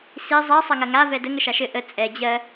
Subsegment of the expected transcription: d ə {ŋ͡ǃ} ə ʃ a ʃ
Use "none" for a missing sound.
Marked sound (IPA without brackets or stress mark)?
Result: ŋ